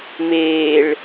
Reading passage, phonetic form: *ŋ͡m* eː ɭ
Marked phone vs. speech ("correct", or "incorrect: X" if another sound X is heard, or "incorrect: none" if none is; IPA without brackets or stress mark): incorrect: m